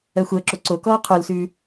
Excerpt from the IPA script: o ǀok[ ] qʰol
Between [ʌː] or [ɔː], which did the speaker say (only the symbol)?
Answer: ɔː